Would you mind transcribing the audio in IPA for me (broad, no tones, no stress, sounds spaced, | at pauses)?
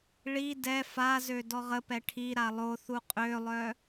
ɭ i d ɛ f a z ø d ɔ ʁ ə p ɛ ʈʰ i ɾ a lˠ o θ u qʼ ø lˠ œ